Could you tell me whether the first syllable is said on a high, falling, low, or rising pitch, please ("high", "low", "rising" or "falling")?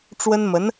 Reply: high